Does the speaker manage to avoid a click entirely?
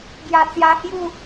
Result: yes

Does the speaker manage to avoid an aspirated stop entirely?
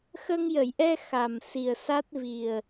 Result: yes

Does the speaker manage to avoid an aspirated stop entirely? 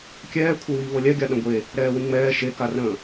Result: no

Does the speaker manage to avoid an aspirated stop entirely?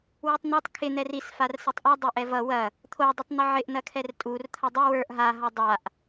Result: no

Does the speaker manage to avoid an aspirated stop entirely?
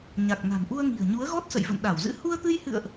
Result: yes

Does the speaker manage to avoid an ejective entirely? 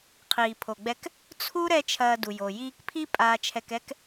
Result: no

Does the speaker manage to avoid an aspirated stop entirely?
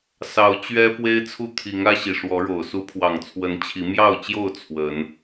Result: no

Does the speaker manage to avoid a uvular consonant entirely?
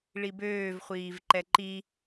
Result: no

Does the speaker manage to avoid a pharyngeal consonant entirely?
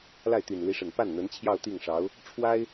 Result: yes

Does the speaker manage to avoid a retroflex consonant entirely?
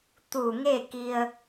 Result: yes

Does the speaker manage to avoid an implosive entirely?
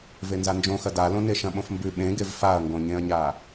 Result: no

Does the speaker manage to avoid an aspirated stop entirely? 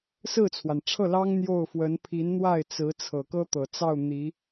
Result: no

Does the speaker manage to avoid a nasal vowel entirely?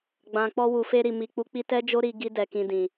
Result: no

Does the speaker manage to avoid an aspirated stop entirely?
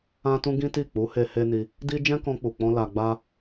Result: yes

